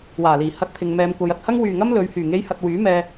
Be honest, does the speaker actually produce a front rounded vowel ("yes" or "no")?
yes